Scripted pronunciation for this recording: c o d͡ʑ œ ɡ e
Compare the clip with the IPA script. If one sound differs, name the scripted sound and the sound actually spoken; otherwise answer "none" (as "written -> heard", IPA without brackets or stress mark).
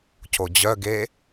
none